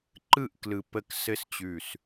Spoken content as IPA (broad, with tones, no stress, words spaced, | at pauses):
ǃɯ˥˨ʔklɯ˧˩ pə˥˨k sɘ˥˨st͡ɕʉ˧˩s